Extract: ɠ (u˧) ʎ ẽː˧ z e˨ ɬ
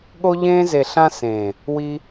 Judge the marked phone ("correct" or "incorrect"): incorrect